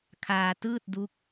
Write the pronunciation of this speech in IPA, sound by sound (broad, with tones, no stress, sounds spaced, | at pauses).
kʰ aː˧ t ɯː˥˩ t̚ d u˦˥ k̚